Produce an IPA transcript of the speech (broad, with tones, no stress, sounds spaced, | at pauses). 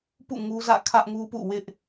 p ṵ˦˨ ŋ u˦ z ä̰˦˨ kʰ ä˦ ʔ ŋ u˦ p ṵ˦˨ w ɪ˦ ʔ